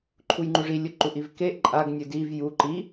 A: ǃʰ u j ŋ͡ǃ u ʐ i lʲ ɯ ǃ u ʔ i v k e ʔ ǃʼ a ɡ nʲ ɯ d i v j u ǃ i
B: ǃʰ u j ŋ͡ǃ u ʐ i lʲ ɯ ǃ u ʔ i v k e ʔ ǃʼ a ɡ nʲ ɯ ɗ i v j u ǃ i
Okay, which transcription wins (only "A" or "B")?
A